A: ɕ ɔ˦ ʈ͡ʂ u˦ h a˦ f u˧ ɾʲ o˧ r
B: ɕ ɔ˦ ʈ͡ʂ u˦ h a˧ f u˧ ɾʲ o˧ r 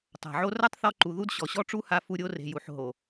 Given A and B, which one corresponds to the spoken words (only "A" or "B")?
B